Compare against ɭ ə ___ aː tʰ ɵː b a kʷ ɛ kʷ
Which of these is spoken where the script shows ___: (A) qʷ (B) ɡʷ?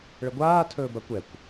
B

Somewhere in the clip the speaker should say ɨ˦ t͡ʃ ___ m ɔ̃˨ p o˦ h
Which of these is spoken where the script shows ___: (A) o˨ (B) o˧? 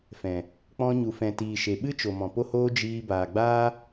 A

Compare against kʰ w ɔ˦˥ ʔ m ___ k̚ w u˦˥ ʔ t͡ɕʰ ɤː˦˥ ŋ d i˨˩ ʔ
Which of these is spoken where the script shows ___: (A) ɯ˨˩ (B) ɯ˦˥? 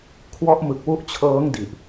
A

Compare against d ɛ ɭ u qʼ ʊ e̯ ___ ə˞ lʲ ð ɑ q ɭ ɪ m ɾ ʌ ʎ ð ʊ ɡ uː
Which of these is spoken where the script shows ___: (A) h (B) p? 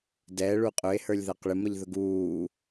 A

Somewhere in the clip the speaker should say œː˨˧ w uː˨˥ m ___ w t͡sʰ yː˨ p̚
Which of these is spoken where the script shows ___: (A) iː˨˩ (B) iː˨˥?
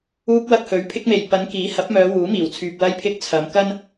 A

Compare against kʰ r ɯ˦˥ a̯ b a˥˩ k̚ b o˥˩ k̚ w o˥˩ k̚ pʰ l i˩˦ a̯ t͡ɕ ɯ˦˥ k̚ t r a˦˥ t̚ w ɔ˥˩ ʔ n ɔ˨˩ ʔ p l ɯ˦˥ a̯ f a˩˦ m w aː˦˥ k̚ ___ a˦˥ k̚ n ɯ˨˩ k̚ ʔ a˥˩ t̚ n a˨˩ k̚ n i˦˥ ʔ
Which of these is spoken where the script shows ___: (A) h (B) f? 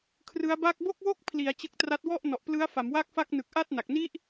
B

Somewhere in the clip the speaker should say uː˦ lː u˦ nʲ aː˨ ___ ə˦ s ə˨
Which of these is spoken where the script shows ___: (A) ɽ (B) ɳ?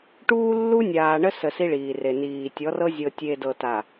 B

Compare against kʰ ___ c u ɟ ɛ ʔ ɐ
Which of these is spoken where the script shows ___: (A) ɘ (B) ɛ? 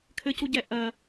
A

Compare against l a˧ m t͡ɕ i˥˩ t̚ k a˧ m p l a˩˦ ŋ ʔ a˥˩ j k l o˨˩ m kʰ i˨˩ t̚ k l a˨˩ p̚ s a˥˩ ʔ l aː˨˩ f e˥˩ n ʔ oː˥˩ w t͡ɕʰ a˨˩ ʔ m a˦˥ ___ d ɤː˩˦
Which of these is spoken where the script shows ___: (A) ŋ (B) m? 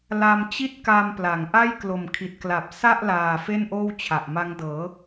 A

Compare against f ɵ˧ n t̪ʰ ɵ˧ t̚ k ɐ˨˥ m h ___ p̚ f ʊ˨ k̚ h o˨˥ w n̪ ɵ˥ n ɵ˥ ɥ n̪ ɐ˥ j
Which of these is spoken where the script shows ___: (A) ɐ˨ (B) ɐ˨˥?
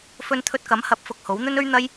B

